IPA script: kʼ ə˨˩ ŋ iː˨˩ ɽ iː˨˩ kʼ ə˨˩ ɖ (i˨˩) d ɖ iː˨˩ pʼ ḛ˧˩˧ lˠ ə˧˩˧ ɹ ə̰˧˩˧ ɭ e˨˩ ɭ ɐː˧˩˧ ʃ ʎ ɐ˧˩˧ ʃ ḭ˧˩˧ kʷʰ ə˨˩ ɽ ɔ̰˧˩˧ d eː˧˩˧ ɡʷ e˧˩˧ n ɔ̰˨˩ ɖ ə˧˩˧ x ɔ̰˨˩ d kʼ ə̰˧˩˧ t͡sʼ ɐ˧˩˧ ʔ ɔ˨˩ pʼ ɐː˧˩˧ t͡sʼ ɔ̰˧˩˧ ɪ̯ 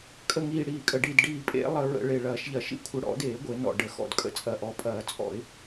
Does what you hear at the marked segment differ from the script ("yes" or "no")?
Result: no